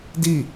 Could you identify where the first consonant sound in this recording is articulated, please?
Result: alveolar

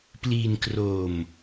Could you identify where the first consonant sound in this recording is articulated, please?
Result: labial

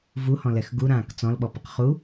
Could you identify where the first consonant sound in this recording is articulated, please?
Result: labial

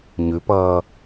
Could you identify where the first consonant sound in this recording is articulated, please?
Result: palatal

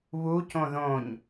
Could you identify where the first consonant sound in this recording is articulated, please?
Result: labial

